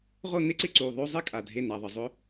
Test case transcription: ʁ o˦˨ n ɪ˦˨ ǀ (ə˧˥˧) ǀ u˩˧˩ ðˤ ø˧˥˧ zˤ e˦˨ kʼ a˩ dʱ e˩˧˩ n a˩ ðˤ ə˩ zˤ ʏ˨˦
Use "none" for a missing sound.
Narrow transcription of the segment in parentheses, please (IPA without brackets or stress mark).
ɪ˧˥˧